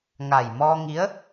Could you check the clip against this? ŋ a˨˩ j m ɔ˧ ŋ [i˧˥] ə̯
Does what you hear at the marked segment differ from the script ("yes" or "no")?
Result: no